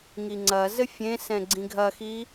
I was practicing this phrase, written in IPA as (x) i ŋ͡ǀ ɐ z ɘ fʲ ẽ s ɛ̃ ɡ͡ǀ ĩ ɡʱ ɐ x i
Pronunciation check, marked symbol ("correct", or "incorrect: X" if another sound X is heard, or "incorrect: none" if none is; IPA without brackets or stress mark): incorrect: ŋ